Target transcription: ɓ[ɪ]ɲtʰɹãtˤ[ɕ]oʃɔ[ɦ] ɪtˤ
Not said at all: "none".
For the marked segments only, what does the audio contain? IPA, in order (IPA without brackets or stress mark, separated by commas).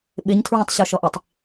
ɪ, ɕ, ʔ